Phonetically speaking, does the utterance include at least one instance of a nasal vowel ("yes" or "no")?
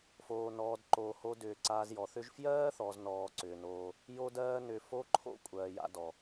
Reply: no